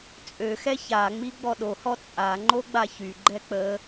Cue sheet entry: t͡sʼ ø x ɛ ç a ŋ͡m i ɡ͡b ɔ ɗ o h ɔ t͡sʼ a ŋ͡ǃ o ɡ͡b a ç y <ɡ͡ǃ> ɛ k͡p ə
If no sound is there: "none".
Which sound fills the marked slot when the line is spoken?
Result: ɡ͡ǃ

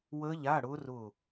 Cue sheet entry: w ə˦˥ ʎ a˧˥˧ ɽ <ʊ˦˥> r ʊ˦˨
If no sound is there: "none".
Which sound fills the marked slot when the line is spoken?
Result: ʊ˦˥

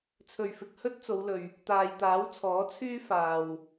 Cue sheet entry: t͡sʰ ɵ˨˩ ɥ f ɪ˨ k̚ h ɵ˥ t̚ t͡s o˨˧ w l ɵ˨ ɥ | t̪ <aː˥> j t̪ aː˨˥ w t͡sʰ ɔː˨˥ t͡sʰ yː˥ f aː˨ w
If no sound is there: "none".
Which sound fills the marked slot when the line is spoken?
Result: aː˨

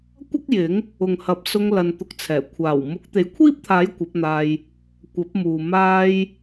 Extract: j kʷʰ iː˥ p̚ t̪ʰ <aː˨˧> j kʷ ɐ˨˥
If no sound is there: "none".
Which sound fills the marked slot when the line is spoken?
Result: aː˨˥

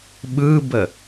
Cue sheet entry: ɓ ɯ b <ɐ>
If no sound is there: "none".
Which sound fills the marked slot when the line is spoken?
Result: ə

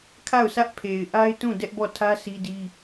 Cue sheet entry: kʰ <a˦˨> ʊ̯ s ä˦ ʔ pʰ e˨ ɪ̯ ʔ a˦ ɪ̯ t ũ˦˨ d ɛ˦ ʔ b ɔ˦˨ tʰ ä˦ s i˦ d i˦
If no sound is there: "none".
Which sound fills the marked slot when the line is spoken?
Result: a˦˨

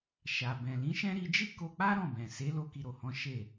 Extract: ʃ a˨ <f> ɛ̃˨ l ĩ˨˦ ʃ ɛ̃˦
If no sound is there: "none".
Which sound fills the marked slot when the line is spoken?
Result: b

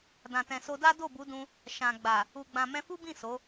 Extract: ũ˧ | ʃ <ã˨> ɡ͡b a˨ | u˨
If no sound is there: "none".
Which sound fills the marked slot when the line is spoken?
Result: ã˨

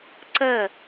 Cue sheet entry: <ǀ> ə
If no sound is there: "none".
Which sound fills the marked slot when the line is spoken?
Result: ǀ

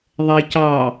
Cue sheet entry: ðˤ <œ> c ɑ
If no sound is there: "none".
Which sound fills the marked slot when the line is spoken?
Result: ɛ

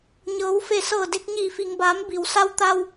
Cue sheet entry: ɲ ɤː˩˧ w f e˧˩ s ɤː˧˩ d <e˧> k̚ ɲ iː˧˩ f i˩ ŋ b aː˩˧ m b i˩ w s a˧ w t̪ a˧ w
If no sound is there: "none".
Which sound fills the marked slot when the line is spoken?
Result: e˧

